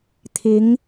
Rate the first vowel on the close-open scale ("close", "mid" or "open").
close